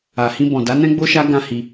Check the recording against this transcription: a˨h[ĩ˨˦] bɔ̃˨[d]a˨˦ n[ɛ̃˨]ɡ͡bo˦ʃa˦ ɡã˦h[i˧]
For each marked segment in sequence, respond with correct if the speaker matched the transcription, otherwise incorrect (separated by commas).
incorrect, correct, incorrect, correct